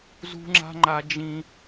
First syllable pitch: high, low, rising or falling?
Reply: high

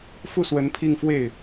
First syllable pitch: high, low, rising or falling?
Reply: falling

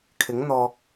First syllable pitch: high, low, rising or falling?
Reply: rising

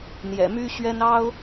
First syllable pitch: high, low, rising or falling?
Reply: low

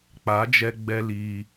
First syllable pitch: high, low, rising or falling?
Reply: rising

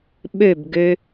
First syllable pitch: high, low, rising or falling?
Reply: falling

